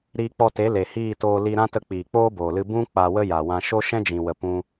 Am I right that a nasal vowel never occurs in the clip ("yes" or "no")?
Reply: no